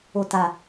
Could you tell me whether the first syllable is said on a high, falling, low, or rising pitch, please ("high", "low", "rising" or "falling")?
low